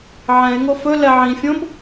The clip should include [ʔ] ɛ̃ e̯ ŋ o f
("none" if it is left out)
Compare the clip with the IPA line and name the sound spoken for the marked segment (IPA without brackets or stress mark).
ʕ